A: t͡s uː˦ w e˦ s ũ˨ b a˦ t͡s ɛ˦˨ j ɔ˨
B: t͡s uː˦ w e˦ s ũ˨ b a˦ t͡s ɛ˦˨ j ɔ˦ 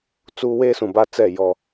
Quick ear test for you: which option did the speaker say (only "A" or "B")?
B